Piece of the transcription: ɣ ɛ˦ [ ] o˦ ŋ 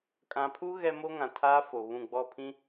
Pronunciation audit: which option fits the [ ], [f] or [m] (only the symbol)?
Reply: m